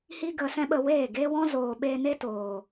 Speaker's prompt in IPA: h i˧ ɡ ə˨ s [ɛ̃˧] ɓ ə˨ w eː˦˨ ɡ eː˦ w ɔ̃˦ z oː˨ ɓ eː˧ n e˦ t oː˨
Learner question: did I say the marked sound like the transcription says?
yes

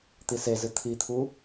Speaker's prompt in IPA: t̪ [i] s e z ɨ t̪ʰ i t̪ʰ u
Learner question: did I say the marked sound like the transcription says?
yes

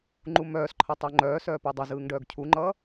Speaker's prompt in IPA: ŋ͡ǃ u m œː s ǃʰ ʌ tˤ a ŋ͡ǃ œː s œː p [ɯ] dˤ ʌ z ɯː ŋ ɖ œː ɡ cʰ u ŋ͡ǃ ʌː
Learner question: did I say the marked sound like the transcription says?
yes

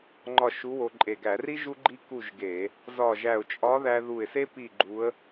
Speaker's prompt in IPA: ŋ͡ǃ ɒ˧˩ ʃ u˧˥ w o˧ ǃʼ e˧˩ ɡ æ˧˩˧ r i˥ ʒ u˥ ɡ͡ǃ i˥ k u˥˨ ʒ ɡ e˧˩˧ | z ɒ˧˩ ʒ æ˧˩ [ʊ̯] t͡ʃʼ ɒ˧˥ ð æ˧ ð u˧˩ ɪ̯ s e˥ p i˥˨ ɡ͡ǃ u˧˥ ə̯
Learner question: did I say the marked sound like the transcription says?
yes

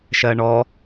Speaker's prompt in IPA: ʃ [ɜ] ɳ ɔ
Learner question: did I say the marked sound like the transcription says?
yes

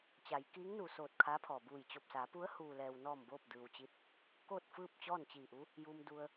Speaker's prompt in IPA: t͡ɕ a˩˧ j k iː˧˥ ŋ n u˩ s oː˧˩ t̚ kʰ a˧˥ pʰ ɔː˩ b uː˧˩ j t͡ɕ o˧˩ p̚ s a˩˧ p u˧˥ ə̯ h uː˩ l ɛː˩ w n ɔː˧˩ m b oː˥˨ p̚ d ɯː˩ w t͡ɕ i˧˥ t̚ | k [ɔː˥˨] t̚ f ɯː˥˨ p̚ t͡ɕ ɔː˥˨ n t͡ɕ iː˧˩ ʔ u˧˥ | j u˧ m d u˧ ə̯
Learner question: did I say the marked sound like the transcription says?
no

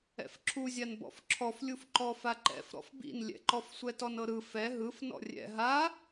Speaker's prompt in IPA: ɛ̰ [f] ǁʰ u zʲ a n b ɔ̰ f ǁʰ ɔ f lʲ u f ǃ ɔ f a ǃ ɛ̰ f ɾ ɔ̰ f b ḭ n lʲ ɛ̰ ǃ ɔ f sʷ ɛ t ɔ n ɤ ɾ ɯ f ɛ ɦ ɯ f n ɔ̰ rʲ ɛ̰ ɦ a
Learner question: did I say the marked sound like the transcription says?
yes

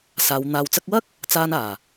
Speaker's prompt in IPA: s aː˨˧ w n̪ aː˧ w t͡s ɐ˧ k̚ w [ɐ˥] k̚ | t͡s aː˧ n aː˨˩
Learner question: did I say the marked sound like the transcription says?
yes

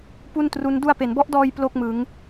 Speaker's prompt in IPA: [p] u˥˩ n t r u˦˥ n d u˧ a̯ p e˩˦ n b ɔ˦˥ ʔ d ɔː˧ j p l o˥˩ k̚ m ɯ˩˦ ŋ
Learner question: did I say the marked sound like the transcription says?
yes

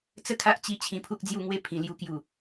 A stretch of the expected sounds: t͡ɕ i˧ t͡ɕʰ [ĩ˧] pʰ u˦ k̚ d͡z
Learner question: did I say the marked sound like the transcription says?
yes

